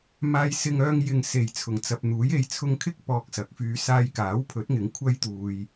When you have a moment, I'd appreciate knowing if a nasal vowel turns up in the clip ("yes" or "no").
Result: no